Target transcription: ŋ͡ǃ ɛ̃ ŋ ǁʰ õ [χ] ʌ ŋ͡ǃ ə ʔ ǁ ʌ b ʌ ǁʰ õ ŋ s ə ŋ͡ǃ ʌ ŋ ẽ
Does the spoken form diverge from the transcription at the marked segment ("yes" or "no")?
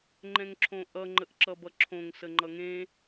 yes